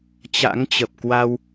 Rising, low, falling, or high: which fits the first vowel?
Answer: rising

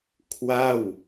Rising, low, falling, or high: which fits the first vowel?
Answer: falling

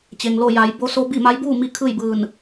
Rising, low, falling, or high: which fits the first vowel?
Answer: low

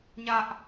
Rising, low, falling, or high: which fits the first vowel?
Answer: high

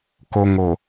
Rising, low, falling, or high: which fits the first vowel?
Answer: low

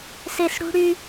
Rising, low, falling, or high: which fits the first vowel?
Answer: low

